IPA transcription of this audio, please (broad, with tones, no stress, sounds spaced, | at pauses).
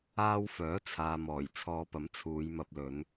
aː˧ w f œː˨˥ t͡sʰ aː˨ m ɔː˨˩ j t͡sʰ ɔː˨˧ p ɐ˨˥ m t͡sʰ uː˨˧ j m ɐ˧ p̚ l ɵ˨˧ n